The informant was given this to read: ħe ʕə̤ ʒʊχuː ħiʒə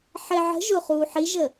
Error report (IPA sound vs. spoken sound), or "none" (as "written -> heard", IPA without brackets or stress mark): none